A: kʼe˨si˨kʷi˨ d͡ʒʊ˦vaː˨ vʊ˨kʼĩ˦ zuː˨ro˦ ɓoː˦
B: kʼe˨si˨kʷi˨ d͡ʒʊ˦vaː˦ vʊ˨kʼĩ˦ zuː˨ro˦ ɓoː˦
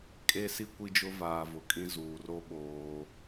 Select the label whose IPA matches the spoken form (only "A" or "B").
A